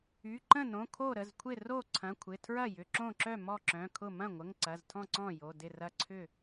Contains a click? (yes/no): yes